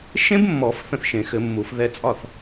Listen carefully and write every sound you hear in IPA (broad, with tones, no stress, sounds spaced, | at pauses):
ʃ ẽ˦˥ b mː ɔ˨˩˦ f θ ə̃˥˩ θ ʃ ẽ˨˩˦ x ɘ˨˩˦ mː u˨˩˦ f ð ɛ˧ t͡sʼ ɒ˥˩ θ